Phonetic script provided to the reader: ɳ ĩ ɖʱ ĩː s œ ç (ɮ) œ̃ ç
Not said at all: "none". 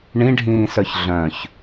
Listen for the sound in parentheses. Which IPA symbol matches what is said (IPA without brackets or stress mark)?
ɮ